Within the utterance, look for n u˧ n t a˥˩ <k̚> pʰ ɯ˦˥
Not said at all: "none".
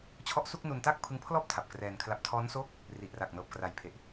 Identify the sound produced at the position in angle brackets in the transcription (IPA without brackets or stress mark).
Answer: k̚